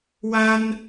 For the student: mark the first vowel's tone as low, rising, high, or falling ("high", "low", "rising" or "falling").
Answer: high